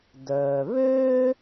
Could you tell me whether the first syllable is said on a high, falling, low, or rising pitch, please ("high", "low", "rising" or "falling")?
low